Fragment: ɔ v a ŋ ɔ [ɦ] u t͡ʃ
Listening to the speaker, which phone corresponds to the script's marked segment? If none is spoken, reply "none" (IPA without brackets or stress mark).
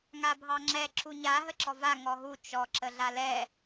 ɦ